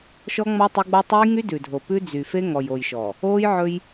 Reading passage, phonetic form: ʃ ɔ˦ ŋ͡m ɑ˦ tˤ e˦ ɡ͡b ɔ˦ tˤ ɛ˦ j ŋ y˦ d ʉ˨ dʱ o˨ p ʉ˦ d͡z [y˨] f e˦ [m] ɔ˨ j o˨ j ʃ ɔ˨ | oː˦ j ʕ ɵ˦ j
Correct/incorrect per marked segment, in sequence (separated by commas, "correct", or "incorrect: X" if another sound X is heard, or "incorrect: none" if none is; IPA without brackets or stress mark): correct, incorrect: ŋ